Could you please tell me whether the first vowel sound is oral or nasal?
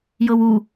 oral